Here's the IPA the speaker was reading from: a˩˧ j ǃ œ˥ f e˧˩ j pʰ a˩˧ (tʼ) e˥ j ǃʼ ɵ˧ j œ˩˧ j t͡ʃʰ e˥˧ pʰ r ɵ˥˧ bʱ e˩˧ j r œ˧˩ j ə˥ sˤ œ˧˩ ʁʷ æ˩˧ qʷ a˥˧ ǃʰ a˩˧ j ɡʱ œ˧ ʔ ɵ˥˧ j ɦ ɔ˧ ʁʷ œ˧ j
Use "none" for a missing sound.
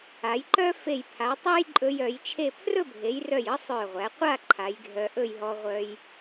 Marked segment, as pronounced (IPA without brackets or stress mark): tˤ